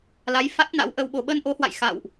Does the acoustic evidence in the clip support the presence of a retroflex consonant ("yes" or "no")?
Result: no